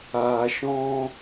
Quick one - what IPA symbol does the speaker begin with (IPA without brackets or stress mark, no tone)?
aː